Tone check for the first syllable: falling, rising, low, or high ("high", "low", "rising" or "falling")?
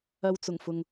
low